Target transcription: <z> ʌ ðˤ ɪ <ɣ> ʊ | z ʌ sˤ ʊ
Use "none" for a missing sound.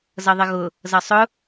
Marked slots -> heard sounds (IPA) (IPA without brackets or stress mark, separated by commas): z, ɣ